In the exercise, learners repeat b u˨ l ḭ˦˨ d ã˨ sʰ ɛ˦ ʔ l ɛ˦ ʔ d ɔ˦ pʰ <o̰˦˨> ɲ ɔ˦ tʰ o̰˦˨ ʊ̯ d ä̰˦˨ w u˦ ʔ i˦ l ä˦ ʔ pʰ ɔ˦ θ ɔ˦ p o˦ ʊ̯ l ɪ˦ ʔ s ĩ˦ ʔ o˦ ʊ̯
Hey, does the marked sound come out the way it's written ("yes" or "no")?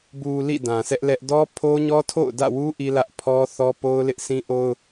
no